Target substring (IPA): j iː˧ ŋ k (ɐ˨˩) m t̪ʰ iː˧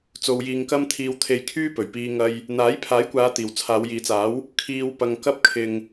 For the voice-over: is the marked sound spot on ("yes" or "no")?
no